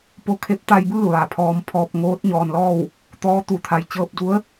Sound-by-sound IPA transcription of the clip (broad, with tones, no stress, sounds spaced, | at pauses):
p o˧ kʰ e˧˥ p̚ t̪ a˧ j b ɯː˥˨ ʋ a˩ pʰ ɔː˧ m pʰ ɔː˧ p̚ ŋ oː˧˥ t̚ ɲ ɔː˩ n l ɔː˥˨ w | t̪ ɔː˧˥ t̪ u˩ t̪ʰ a˩ j t͡ɕ ɤː˧ p̚ d u˧˥ ə̯